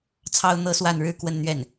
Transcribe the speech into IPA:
t͡sʰ ɑ˥ ʊ̯ n̪ ɤ˥ s w a˥˧ n ɻ ɻ̩˥˧ k w ə˥˧ n n̪ ɥ ɛ˥˩ n

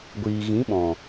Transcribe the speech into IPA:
ɡʷ iː˨ ɣ ĩ˨˦ ɓ ɔ̃˨

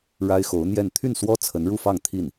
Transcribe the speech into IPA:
ɻ a˥ ɪ̯ x o˧˥ ʊ̯ n̪ j ɛ˥˧ n t̪ʰ y˥˩ n s w ɔ˥ t͡sʰ ə˧˥ n ɻ u˥˧ f ɑ˥˧ ŋ t̪ʰ i˥˩ n

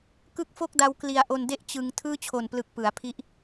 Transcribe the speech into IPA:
k ɯ˥˩ k̚ f o˥˩ k̚ d a˧ w k l i˧ a̯ ʔ o˧ n d e˥˩ ʔ t͡ɕ ɯ˧ ŋ tʰ ɯː˥˩ t͡ɕʰ o˨˩ n p l ɯ˨˩ k̚ p ɯ˩˦ a̯ pʰ i˦˥ ʔ

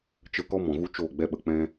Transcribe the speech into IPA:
t͡ʃ ə˦ k ɔ˦ m ɔ̃˨ ɣ u˦ t͡ʃ oː˦˨ ɡ͡b ɛ˦ ɓ ə˨ k͡p ɛ̃˦

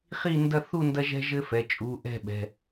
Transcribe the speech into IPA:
χ i˥˧ n d ɐ˥˧ θ u˥˧ n d ɐ˥ ʒ ɛ̤˥ ʒ ɘ˥ f ɛ˩˧˩ t͡ʃʼ u˩˧˩ ʔ ɛ̤˥˧ ɓ ɛ̤˩˧˩

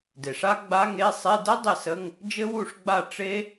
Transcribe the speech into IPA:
d e˩ ʂ a˦˥ ɡ͡b a˧˥˧ ŋ e˧˥˧ sˤ e˧˥˧ d ə˦˥ dˤ e˥˩ s ə˧˥˧ ŋ | d͡ʒ ɘ˦˥ w u˥˩ ʂ ɡ͡b a˥˩ ʈ͡ʂ e˦˥

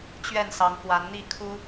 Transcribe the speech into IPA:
t͡ɕ ɥ ɛ˥˨ n s ɑ˨˦ ŋ k w a˨˦ n n̪ i˥˨ kʰ u˦

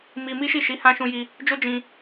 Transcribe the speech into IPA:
m i˧ m i˦ ʃ i˦˨ ʃ i˨˦ h ã˧ ʃ ũ˧ j i˧ | d͡ʒ o˦ d͡ʒ ĩ˧

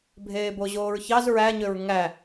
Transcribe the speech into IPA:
bʱ eː b o ʑ oː ɹ ç ɑ z ɹ æ ɲ ø ɹ ŋ æ

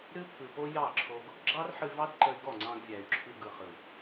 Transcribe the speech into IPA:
ɾ ɨ˦ pʰ ɯ˨ p o˦ j ɑ˦˨ ǁʰ o˧ ɡ | ɡ͡ǁ ɑ˦ r ħ ɨ˧ v ɑ˦ d ǃ ə˧ y̯ ɡ ɔ˦˨ ŋ͡ǀ ɑ̃˧ ɡ vʲ æ˨ y̯ ǁʰ ɨ˧ ɡ ɯ˨ χ ɯ˨

